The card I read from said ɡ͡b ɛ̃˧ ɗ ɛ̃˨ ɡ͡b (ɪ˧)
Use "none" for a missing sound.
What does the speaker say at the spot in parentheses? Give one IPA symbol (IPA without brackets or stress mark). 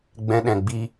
i˧